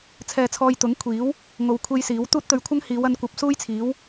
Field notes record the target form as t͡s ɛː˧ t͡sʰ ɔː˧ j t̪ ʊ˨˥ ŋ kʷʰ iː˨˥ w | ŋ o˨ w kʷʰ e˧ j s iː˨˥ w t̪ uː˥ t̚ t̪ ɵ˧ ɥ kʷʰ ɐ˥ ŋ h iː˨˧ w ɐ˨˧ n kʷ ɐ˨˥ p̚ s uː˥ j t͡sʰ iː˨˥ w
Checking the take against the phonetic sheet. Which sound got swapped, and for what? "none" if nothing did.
t͡s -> t͡sʰ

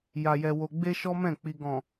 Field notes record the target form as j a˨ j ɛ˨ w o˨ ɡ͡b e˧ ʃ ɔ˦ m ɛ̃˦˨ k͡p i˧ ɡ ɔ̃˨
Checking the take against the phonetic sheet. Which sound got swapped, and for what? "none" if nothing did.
none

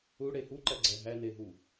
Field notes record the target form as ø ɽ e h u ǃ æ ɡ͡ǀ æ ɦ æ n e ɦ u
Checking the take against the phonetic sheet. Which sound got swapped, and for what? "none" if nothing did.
ø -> u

